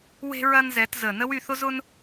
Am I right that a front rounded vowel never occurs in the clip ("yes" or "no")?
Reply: no